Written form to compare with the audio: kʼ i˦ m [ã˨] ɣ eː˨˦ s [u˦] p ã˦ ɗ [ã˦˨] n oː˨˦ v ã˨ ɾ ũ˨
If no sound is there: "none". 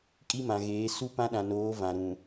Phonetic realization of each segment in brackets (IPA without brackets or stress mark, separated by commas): ã˨, u˦, ã˨